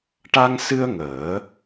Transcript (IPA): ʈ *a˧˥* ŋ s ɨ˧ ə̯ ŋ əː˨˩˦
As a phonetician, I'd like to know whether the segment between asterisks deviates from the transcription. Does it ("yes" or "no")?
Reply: yes